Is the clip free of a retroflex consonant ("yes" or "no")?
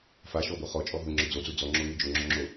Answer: yes